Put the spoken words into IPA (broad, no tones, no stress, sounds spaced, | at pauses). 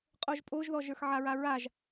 qʼ o ʒ pʼ o ʒ ð ɔ ʒ ə˞ x ʕ a ɹ a ɹ a ʒ